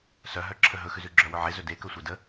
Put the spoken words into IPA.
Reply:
s œ ɦ œ ǁʰ ə ɦ ɵ x ʉ z ʉ ɡ͡ǁ œ w ɵ ʕ e z ɵ d e k ɵ sʷ e d ə

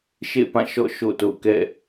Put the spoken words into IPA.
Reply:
ʃ ḛ˦˨ p ã˦˨ ʃ ɔ̰˦˨ ʃ o̰˦˨ t o̰˦˨ ʊ̯ k ɛ̰˦˨

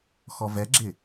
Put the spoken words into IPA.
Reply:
x ɔ v ɛ ɡ͡ǁ ɪ

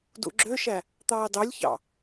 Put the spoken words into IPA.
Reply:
d ṵ ɡ͡ǁ ø ʃ æ | t̪ ɑː d ɑ lʲ ç ɑ̰

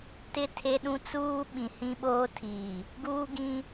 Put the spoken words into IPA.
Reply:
t ɪ˦ tʰ e˦ ɗ ũ˦ t͡s uː˦ ɓ ĩ˨ h ĩ˦ ɓ oː˦ tʰ iː˨ | ɡ uː˦ ɡ ĩ˦

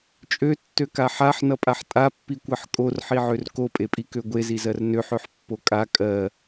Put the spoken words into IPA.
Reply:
t͡ʃʼ ø tː ø k a ħ a ħ n ʌ pʼ a ħ tʼ a pː i kʷ ɜ ħ kʼ o r ħ i ʕ ø r k o pʼ e pʼ i k ø ɡʷ e z i z ɜ r n ø ħ ø ħ pː o kʼ a kʼ ɜ

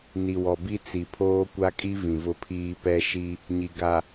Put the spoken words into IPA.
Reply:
n i˨ w ɔ˨ b i˦ t͡s i˨ pʰ oː˦ kʷ a˦ kʼ i˦ v ĩ˨ v ʊ˦ pʰ iː˦ p ɛ˦ ʃ i˦ | ɲ i˨ ɡ a˨

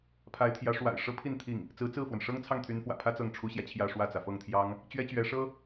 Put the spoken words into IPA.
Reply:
pʰ a˧˥ ɪ̯ t̪ʰ j ä˧˥ ʂ w a̰˨˩ ɪ̯ ʂ ɤ˥ pʰ i˥˧ n t̪ʰ i˥˩ ŋ | t͡s ɹ̩˧˥ t͡s ɹ̩˥˩ f w ə˩ n ʂ ɤ˥ ŋ t͡sʰ ɑ˥˩ ŋ t̪ʰ y˧˥ n f w ä̰˨˩ pʰ ä˥ t͡s ɤ˥˩ ŋ ʈ͡ʂʰ u˥ ɕ j ä˨ t͡ɕʰ j ä˥˧ ʂ w ä˥˩ t͡s ä˩ f ɤ˥˩ ŋ t̪ʰ j ɑ˥ ŋ | t͡ɕ ɥ ɛ˥ t͡ɕ ɥ ɛ˧˥ ʂ ɤ˥

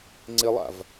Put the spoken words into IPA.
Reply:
ŋ͡ǀ e lˠ a̰ v

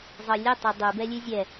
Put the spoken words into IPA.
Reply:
zˤ ɤ lʲ ɛ tˤ ɛ dˤ ʉ b ɛ lʲ ʉ zʲ ɛ

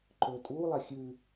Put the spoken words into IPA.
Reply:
ǃ ɵː tʼ uː lˠ æ xʲ ʉ

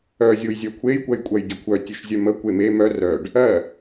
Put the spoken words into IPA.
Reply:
œ zʲ o j zʲ œ kʷʰ e j kʷ ɜ j kʷʼ ɜ j dʲ ʉ kʷʰ œ tʲ ʉ ʃ zʲ œ m ə kʷ e m e m œ r œ ɖ | ɜ

